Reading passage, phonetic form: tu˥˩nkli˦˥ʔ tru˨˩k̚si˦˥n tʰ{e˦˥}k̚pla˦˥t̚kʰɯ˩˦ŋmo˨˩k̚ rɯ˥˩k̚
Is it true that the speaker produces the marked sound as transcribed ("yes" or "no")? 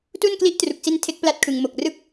yes